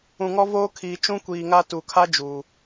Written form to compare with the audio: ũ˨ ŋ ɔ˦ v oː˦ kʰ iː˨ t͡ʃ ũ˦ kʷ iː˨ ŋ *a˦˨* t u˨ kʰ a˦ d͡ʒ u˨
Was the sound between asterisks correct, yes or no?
no